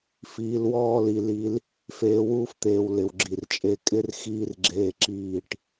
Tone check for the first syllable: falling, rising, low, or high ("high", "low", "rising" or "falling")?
low